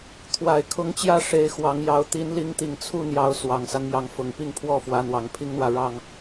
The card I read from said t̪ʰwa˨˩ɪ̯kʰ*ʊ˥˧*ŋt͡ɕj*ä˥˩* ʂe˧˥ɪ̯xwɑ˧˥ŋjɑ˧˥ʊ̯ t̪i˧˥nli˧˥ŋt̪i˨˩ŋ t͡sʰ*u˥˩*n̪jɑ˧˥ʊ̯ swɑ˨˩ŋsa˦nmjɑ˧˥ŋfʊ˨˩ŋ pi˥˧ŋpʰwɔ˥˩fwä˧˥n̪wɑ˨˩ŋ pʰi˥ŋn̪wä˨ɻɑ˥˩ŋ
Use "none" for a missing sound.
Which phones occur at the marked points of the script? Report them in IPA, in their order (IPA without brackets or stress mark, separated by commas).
ʊ˧˥, ä˥˩, u˥˩